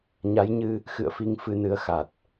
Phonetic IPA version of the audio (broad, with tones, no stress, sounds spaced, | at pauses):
ɲ a˨˦ j ɲ ɨ˧ | x ɨ̰˧˨ ə̯ f i˨˦ ŋ f ɨ˧ n ɨ˨˦ ə̯ x a˨˩ t̚